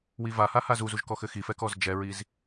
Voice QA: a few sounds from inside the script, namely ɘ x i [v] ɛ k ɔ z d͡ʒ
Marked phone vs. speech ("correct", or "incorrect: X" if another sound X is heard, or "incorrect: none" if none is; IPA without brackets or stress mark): incorrect: f